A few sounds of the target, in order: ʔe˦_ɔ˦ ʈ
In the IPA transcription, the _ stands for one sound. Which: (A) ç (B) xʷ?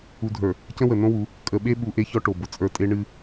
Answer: A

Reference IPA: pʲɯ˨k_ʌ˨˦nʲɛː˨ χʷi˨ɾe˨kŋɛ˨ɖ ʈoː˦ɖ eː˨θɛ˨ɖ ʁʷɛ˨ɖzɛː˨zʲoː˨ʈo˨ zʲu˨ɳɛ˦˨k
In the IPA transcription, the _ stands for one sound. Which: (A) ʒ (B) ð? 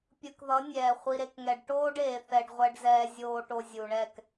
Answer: B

